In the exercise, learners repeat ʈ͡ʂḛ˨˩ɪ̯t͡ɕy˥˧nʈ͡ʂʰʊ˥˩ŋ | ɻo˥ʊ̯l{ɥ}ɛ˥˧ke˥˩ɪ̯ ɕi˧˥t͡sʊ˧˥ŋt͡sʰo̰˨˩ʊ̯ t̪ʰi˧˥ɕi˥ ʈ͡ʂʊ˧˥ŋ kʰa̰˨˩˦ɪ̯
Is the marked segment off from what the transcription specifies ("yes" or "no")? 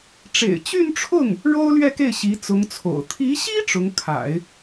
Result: no